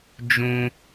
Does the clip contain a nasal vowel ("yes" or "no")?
yes